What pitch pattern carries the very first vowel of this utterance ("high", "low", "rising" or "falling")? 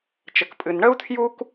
low